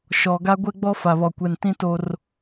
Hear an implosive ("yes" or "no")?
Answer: no